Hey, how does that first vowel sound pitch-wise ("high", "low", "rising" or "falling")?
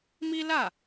high